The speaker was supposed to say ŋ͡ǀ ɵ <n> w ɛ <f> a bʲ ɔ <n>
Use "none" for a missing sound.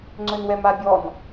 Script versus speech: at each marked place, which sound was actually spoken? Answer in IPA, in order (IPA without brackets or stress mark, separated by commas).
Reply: n, m, n